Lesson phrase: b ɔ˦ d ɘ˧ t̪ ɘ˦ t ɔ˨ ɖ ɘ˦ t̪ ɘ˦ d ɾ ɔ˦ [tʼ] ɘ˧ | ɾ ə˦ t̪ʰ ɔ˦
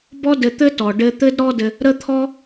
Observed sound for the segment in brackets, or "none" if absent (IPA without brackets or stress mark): d